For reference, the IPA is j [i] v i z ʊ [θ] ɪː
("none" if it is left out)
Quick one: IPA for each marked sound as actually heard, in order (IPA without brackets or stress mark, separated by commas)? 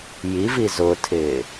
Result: i, tʰ